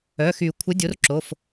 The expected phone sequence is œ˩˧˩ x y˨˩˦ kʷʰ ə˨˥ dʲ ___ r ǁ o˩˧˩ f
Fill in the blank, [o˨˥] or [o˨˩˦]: o˨˥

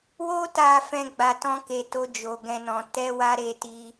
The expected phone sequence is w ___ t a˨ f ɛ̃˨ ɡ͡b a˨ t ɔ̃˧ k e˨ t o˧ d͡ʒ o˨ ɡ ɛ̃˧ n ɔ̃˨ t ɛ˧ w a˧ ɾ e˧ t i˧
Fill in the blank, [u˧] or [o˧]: o˧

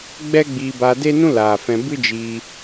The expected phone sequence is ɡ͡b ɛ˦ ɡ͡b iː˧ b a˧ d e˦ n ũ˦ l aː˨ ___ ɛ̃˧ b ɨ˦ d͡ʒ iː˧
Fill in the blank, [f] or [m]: f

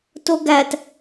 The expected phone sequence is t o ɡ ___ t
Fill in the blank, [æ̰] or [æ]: æ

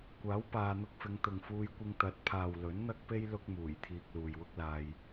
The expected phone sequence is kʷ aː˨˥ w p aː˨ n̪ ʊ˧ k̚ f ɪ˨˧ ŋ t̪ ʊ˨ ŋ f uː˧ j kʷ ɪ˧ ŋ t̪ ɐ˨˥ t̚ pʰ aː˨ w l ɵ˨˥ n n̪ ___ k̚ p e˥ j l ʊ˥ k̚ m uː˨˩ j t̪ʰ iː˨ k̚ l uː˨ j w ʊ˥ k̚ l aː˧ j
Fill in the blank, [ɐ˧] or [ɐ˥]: ɐ˥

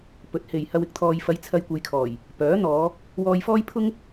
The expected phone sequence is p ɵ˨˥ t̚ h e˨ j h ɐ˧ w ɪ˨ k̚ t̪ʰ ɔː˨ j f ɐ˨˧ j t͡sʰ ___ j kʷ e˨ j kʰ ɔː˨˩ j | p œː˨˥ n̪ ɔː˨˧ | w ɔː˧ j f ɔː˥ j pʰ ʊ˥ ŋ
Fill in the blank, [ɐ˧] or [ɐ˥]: ɐ˧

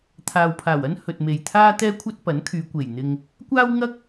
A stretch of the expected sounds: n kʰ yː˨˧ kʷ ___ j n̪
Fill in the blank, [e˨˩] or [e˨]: e˨˩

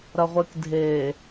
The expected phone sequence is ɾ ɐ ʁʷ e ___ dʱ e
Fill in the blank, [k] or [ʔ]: k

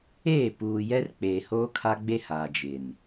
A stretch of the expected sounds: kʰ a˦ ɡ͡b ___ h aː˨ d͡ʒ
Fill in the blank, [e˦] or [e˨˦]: e˦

